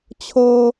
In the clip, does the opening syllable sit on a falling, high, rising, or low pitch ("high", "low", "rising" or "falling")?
high